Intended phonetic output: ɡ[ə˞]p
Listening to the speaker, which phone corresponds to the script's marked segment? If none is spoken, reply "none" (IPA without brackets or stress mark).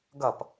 ʌ